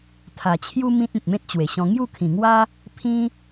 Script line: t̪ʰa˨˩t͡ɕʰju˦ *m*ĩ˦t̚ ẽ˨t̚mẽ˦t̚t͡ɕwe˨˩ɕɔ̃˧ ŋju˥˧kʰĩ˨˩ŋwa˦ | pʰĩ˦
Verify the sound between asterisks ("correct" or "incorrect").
correct